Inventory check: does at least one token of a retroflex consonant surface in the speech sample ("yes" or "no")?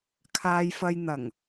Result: no